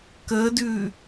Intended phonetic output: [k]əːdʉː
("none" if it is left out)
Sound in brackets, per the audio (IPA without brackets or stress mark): k